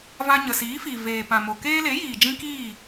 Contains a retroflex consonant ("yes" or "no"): no